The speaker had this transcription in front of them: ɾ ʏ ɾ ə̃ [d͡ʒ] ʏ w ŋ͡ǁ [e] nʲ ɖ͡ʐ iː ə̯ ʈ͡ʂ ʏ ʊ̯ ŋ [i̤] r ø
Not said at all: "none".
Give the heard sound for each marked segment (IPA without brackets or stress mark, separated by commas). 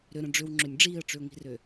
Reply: ɖ͡ʐ, ø, i̤